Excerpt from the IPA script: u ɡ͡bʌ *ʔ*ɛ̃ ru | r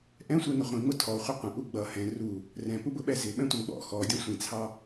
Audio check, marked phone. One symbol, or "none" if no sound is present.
h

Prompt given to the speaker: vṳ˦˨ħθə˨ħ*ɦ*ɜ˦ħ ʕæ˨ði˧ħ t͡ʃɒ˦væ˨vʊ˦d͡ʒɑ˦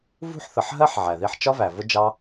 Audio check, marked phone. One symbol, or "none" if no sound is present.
ɦ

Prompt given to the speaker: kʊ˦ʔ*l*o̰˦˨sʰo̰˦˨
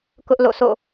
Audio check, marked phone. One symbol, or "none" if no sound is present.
l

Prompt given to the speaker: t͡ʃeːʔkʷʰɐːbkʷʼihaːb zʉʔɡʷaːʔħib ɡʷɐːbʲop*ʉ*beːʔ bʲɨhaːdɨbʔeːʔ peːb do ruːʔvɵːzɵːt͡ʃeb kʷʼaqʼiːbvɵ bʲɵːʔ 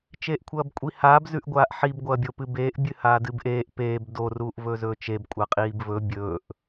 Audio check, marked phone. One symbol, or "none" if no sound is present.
ɨ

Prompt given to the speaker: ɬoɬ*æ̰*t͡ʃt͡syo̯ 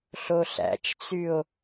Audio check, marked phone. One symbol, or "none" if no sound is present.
æ̰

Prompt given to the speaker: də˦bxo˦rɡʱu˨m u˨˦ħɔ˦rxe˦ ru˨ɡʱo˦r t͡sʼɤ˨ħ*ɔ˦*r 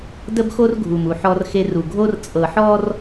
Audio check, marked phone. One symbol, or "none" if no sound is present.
ɔ˦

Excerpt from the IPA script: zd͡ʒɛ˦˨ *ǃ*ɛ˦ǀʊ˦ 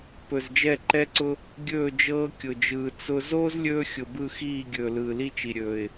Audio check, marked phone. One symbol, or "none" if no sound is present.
ǃ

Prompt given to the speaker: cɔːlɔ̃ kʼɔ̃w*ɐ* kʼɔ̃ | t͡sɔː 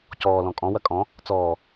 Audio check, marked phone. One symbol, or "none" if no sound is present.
ɐ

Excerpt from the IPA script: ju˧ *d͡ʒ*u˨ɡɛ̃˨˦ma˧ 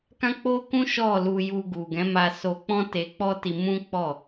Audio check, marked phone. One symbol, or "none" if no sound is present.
ɡ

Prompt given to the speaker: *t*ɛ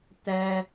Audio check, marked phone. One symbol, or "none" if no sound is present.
t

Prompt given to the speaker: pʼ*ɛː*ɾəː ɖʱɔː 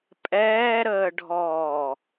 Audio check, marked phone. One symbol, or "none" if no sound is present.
ɛː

